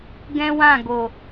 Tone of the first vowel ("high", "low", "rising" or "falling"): high